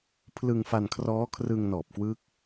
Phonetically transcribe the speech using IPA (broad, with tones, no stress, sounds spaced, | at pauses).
pʰ l ɯ˧ ŋ f a˧ n kʰ r ɔː˦˥ kʰ r ɯ˧ ŋ n ɔː˨˩ p̚ k w ɯː˦˥ k̚